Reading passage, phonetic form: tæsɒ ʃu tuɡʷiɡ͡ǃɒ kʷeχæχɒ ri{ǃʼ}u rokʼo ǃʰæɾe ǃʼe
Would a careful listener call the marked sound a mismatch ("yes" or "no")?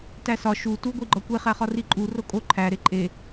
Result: no